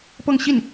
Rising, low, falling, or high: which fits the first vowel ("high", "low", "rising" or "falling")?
falling